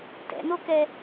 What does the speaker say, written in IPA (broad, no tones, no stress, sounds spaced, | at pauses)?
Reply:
t ɛ̰ n o k ɛ